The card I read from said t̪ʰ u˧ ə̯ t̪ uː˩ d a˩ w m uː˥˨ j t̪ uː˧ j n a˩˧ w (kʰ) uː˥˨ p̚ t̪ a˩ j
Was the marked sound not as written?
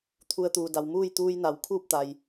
no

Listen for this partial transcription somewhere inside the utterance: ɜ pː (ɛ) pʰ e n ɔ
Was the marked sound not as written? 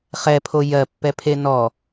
no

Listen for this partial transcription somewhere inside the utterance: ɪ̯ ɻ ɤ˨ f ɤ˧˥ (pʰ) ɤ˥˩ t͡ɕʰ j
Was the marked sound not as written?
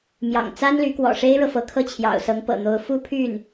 yes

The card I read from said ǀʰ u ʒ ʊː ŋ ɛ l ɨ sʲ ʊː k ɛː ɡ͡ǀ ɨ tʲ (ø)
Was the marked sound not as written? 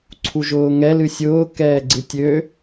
no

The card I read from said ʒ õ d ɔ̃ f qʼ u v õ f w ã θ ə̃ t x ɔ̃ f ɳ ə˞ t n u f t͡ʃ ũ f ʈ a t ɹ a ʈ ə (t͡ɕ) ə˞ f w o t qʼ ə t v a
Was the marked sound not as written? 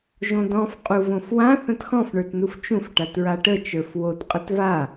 yes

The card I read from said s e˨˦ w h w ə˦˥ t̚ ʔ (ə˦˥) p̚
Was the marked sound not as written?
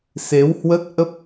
no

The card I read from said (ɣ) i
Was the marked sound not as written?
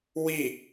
yes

